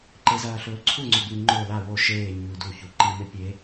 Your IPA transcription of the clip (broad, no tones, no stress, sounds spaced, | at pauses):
ǃ e z ɐː ɬ ɵː ǀʰ u ŋ͡ǀ ɵ b ɨ ŋ͡ǃ o l a w o ʃ eː ɲ ʉː d u ç u ǃ i m e pʲ e